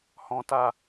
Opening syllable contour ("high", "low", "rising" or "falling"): high